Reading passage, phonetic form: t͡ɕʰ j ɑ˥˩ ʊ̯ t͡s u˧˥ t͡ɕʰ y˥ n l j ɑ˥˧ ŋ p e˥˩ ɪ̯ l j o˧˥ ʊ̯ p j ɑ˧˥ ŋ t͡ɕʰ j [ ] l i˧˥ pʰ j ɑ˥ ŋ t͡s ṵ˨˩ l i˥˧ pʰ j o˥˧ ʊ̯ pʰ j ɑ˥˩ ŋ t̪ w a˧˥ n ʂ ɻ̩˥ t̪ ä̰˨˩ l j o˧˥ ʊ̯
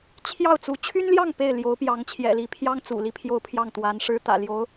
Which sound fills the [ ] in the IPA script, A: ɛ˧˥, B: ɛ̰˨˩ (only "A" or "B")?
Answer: B